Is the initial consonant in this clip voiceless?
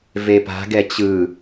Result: no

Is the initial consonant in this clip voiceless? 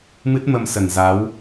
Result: no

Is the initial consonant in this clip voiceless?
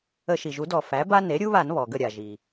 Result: yes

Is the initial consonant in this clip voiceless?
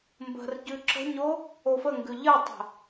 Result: no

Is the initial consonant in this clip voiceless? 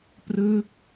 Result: yes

